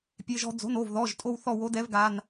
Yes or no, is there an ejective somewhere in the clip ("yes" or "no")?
yes